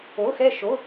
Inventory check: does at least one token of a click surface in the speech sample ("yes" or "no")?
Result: no